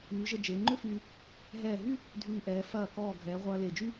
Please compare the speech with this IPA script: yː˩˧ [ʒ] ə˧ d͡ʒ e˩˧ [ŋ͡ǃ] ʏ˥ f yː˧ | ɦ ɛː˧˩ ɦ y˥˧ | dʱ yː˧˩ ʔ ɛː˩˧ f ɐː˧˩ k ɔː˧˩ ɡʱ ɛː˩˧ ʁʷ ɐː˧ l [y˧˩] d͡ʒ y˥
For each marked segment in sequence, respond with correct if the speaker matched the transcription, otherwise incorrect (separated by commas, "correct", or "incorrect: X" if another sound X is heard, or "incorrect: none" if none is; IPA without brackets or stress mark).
correct, correct, incorrect: e˧˩